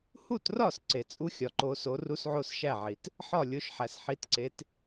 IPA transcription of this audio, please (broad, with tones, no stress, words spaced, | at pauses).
hu˥˨trɒ˥˨s ǀe˩ t͡sʼu˥xʲɒ˩ǃo˨˦so˨˦ ru˥sʕo˥sʃæ˥˨ʕi˩t | ħɒ˥˨lʲo˨˦ʃħæ˩s ħi˨˦tǀe˨˦t